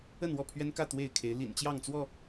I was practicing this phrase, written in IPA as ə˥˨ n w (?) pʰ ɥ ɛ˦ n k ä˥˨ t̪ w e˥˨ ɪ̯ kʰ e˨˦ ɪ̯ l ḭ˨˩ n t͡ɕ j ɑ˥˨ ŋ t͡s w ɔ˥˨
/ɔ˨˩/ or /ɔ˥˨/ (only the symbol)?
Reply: ɔ˥˨